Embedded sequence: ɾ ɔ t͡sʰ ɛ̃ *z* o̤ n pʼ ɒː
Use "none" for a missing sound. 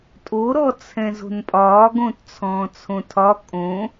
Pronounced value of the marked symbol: z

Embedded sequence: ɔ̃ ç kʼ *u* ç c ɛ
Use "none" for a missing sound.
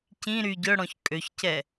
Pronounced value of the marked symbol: ø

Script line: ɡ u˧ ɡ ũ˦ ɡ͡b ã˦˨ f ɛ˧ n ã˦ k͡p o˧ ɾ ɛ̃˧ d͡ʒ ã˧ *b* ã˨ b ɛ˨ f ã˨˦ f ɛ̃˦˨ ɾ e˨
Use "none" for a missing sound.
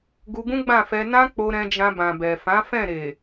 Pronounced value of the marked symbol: b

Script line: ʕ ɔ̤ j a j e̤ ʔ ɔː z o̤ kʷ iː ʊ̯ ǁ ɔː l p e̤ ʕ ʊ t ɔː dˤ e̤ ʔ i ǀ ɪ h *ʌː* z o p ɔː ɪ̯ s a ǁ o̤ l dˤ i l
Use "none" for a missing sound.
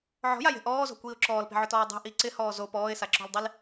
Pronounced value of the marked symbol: ɔː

